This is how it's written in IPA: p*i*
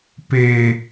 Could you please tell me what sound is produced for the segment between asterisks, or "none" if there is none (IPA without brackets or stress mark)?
e